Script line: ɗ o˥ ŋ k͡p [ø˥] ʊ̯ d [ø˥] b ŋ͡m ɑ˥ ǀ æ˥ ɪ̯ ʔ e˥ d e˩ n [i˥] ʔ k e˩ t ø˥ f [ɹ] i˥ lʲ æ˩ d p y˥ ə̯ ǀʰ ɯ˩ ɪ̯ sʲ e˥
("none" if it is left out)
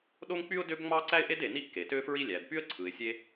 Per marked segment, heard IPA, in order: y˥, ø˥, i˥, ɹ

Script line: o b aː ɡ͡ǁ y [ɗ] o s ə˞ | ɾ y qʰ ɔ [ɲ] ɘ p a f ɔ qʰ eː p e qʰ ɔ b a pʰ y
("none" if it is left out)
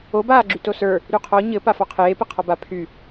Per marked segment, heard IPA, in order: t, ɲ

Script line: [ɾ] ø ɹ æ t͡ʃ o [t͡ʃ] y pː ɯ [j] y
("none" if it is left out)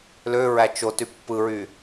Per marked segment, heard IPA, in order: l, t, ɹ

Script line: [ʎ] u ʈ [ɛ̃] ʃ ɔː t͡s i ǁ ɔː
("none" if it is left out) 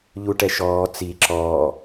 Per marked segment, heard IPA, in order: ʎ, ɛ

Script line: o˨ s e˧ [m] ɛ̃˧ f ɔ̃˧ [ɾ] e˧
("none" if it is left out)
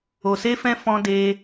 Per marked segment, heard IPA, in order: f, d

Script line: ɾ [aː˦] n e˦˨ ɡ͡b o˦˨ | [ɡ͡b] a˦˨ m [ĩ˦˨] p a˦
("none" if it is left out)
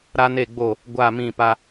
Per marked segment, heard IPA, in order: a˦, ɡʷ, ĩ˦˨

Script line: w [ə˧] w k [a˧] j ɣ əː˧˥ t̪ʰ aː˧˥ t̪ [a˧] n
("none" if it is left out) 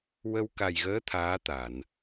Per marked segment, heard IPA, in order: ə˧, a˨˩, a˨˩˨

